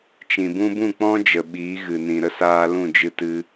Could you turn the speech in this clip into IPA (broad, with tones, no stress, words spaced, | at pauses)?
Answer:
t͡ʃĩ˨bũ˦ bũ˦˨k͡pɔ̃˦d͡ʒə˨ ɓiː˨˦ɣɨ˨nĩ˨ ɾə˦saː˧lũ˦˨ d͡ʒɨ˧tɨ˧